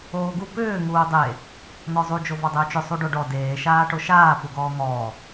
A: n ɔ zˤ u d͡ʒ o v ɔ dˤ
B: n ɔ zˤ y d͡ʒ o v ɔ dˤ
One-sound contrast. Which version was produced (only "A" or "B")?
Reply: A